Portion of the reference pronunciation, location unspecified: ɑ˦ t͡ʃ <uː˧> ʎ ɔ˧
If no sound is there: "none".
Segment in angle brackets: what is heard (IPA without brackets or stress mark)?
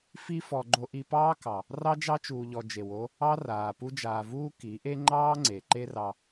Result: uː˧